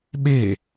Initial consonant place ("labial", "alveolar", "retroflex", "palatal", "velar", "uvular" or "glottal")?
labial